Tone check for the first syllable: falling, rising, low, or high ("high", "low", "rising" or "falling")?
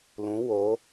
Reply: rising